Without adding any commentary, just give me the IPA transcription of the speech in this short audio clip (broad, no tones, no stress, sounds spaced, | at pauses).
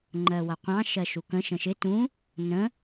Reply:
ŋ͡ǃ ɜ w ʌ qʷ ɑ̃ ʃ ɜ ʃ u k ə̃ ʃ ə̃ ʃ ɪ t ũ | n ə̃